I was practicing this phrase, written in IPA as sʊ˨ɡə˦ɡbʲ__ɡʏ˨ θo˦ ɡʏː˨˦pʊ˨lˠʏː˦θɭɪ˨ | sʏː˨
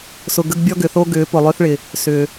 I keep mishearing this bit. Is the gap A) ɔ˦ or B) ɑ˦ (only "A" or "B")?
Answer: A